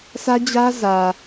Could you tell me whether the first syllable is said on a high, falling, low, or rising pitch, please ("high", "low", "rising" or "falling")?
high